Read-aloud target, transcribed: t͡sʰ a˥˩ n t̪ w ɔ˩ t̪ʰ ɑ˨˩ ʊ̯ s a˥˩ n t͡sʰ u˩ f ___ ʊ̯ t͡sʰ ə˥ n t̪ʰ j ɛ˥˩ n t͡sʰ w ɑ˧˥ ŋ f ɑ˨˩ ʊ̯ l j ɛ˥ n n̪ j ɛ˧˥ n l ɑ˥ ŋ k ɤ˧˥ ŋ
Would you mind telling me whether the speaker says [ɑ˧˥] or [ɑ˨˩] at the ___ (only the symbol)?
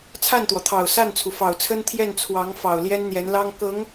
ɑ˨˩